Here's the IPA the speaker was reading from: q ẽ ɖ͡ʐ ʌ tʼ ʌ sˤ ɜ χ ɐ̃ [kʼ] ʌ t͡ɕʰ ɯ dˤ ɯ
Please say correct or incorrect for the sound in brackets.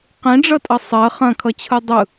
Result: incorrect